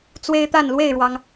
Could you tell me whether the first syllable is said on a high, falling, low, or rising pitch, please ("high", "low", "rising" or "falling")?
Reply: high